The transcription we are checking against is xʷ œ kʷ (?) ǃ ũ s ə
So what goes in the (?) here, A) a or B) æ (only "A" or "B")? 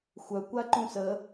A